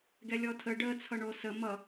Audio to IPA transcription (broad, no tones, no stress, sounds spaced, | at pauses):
ɡ ɛ lʲ ɔ tʰ ə ɖ ə t͡sʰ ʌ ɳ o s ə m ʌ